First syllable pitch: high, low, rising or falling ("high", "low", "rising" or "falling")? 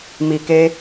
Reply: low